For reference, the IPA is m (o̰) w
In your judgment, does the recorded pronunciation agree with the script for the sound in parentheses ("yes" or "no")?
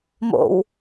yes